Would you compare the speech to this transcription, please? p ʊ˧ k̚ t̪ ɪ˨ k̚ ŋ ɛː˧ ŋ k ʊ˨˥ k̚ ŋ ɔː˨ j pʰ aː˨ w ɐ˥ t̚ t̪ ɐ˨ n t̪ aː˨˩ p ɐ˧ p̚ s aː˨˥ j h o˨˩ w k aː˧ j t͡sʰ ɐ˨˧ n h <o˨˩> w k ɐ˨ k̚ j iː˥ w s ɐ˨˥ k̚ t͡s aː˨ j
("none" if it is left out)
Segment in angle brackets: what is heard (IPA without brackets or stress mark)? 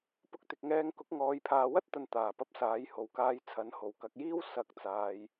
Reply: o˨˩